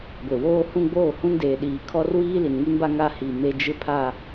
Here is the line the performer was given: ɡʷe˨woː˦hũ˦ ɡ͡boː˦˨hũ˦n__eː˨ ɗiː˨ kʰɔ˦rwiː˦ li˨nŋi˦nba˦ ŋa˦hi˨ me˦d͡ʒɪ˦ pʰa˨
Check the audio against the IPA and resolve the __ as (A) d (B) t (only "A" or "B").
A